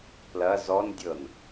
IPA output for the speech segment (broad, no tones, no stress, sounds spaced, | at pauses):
p l ɐ z ɔ n dʲ ɤ n